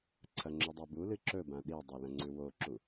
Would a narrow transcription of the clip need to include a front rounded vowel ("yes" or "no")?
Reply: no